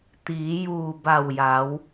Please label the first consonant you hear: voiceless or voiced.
voiceless